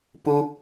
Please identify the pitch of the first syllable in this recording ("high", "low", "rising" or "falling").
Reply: high